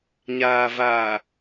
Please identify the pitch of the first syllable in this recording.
low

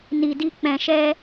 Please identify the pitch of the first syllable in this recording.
low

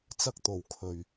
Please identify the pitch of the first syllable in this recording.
high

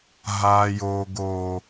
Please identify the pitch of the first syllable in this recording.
low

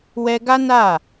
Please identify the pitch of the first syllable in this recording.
high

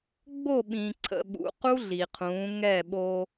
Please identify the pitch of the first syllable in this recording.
falling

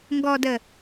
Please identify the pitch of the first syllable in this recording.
low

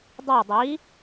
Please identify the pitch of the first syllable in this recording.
falling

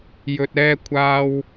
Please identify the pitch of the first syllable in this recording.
low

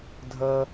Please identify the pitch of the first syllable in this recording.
high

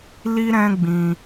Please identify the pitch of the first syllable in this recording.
high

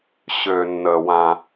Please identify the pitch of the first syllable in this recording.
low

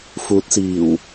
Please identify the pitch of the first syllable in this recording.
rising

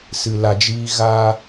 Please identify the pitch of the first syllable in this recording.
low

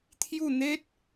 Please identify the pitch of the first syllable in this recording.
falling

